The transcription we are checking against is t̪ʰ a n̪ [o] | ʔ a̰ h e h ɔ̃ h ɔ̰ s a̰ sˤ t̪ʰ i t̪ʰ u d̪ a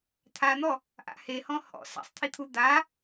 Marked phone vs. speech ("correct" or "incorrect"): incorrect